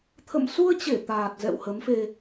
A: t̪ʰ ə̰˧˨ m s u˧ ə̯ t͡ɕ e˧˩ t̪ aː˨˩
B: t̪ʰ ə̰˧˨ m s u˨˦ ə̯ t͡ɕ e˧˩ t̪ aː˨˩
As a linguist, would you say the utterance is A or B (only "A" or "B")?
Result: A